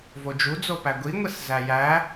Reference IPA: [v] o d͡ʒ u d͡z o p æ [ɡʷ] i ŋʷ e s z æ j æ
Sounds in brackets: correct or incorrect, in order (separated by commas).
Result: correct, correct